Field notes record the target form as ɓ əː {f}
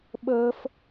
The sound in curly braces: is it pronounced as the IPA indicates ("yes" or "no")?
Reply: yes